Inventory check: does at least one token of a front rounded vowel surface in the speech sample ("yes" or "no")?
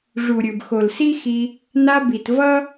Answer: no